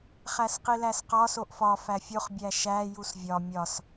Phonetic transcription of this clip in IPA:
χ æ s q i l æ s q ɒ s o ʔ f ɒ f æ fʲ o χ bʲ æ ʃ æ j u s vʲ ɒ mʲ ɒ s

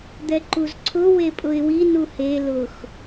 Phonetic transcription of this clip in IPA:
d̪ ɛ ǃ u z ǀʰ ʊ w e pʼ ʊ ɪ̯ w i n u h e l ʊ x

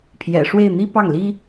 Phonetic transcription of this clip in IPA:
pʰ j ɛ̰˨˩ ʂ w e˥˩ ɪ̯ n̪ i˥ p ɑ˥˩ ŋ l i˥

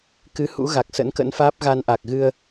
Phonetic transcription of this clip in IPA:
k ɨ˨˦ h ṵ˧˥ ɣ a˨˩ k̚ s ə̰˧˥ n k ə̰˧˥ n f aː˦˥ p̚ ɣ a˧ n ʔ a˨˩ k̚ ɣ ɨ˧ ə̯

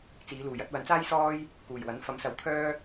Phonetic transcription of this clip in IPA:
t͡s iː˨˧ l uː˨˩ j ɐ˨˥ t̚ w ɐ˨˥ n t͡s aː˥ j s ɔː˥ j | k uː˨˩ j w ɐ˨˥ n f ɐ˨˥ m s ɐ˨˥ w t̪ʰ œː˥

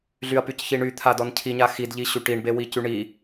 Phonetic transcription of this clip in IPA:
ɮ y ɐ̯ p y c ç i ɳ y t̪ʰ a d ɔ n cʰ i ɲ a x i d ʎ i ɕ y ʈ i ɳ b e w i c y ɳ i

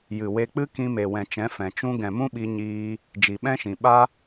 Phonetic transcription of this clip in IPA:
j ɨ˨ w e˧ k͡p ɨ˦ k ĩ˧ m e˨ w ɛ̃˨ t͡ʃ ɛ̃˨˦ f ɛ̃˨ t͡ʃ ũ˦ ɡ ɛ̃˨ m ũ˦ ɓ i˧ ɲ iː˧ | d͡ʒ i˨ ɓ ɛ̃˦ ʃ ĩ˨ ɓ a˦

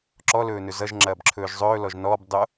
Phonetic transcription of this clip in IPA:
ǁ ɔ l ɵː n ɵ z ʌ ʒ ŋ͡ǁ ɐː b ǁʰ ɵː ʒ zˤ ɵː l ɔ ʒ n ɔː b dˤ o

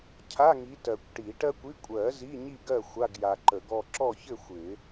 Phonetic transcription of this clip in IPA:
cʰ a˧˥˧ ŋ i˨˦ t ɜ˨ kʷ ʈ i˨˩˦ ʈ ɜ˥ kʷ i˧˥˧ kʷʼ ɜ˨˩˦ z i˧˥˧ ɲ i˥˨ ɡ ɜ˥˨ xʷ a˧˥˧ ɡ j a˨ ǃ ə˨˩˦ ɡ ɔ˥˨ ǁ ɔ˥˨ ç ɘ˥˨ xʷ ɪ˨˩˦

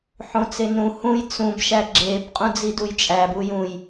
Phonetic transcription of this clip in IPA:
ħ õ t͡s e n ũ h ũ j t͡s ũ b ʃ æ ɡ͡ǁ e b qʼ ũ d͡z i d u j t͡ʃʼ æ b u j ũ j

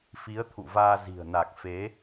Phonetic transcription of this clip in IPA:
f i˨˦ ə̯ t̪ʰ ṵ˧˨ v aː˧ z i̤˨˩ ə̯ n a˨˩ k̚ f e˨˦

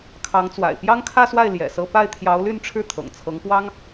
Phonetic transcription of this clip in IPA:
kʰ ɑ˧˥ ŋ t͡s w a̰˨˩ ɪ̯ p j ɑ˥ ŋ kʰ ä˥˧ s w a˥˩ ɪ̯ l j ɛ̰˨˩ s ɤ˥˧ p a˥˩ ɪ̯ t̪ʰ j ɑ˧˥ ʊ̯ l y˥˧ n ʈ͡ʂʰ ɻ̩˥˩ t̪ʰ ɤ̰˨˩ ŋ t͡sʰ ɤ˧˥ ŋ p w ɑ˥ ŋ

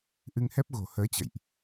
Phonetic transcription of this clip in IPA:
ʔ ɨ˧ ŋ h ɛ˦˥ p̚ ɣ o̤˨˩ h əː˨˦ t͡ɕ ə̰˧˨ j ʔ

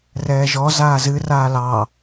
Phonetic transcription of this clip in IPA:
r ɛː ʒ ɔ z aː z ɨ r aː l ɑ

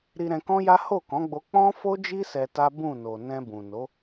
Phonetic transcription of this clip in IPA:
ɾ i˧ ɾ ɛ̃˧ k ɔ̃˦ j a˦ h o˦˨ k ɔ̃˨˦ ɡ͡b o˧ k͡p ɔ̃˦ f o˦ d͡ʒ i˦ s ɛ˧ t a˦ b ũ˦˨ n o˨ n ɛ̃˧ b ũ˨ n o˨˦

